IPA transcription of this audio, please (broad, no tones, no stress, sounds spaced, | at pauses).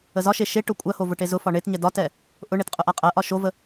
ə z ɒ ʃ e ʃ e ʈ ʊ kʷʼ ɜ h o v ʊ ʈ e z ʊ f ɒ ɳ e t ɲ ɛ d ɒ t ɛ | ʔ ʊ ɳ e t qʼ ʊ ʔ a qʼ ɜ ʔ ɒ ʃ o v ə